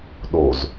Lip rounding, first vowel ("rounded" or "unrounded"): rounded